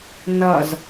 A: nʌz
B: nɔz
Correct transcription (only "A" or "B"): A